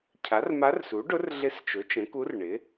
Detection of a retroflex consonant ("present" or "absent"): present